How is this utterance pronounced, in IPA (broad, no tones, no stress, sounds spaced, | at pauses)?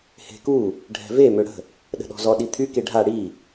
h e̤ k u | ɖʱ ɛ̤ v e m ø ɽ ə̤ | ɗ ə̤ ɗ ɔ̤ z ɔ ɗ i t̪ʰ y k e ɖʱ a ɽ i